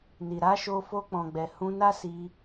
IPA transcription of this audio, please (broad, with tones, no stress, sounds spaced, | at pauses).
n i˨ ɾ a˨˦ ʃ o˧ f o˧ k͡p ɔ̃˨ ɡ͡b ɛ˨ h ũ˧ n a˦ s i˧